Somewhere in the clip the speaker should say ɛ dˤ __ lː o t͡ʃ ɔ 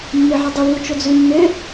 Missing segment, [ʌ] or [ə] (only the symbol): ə